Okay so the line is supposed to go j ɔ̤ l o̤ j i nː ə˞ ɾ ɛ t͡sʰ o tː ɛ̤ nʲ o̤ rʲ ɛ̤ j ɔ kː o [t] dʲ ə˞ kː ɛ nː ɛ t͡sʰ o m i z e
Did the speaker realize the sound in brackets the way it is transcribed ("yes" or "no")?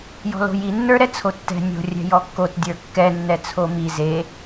yes